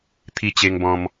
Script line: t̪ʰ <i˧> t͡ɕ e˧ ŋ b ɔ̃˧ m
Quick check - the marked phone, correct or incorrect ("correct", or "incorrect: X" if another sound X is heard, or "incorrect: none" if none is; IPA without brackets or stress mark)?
correct